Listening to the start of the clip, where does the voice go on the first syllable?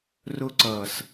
high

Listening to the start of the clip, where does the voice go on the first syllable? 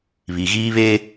low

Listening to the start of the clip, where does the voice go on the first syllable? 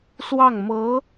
falling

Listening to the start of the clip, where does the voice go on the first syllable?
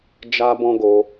high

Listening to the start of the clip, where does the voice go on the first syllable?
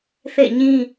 falling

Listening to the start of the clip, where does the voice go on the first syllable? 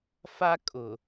high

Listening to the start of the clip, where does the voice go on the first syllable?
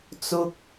high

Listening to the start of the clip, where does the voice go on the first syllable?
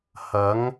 rising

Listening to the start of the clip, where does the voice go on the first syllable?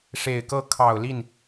low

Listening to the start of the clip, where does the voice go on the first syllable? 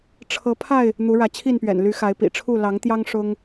rising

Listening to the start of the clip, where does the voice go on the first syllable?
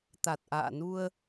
low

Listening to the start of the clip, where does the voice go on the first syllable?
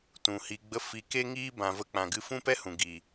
low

